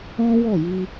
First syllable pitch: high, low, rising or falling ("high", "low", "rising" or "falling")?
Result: high